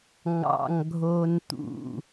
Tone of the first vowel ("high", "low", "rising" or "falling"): low